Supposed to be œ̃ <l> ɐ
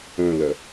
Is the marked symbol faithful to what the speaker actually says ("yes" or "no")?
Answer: yes